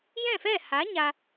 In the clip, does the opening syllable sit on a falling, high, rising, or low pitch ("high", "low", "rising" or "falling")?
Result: falling